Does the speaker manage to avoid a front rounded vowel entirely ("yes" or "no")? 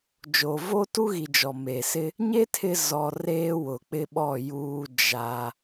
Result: yes